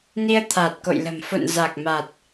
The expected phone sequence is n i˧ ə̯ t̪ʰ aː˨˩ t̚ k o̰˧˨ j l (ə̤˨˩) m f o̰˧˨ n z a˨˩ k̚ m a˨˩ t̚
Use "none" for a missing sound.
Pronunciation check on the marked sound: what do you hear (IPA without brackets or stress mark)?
ə̤˨˩